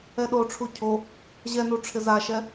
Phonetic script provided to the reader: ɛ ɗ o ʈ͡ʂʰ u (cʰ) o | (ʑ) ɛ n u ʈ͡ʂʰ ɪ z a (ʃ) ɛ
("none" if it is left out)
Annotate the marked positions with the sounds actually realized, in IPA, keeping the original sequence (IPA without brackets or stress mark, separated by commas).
cʰ, ʑ, ʃ